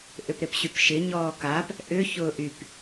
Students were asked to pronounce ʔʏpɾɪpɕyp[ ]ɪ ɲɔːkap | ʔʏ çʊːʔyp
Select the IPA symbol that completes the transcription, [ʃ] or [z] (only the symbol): ʃ